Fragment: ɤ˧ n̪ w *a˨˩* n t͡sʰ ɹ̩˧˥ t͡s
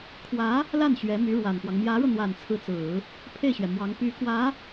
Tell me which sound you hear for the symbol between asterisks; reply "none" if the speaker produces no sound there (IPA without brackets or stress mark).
a˨˩